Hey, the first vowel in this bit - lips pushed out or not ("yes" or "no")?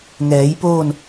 no